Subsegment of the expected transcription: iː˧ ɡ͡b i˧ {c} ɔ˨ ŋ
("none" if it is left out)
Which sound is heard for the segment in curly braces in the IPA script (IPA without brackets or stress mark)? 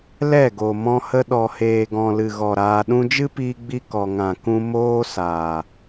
k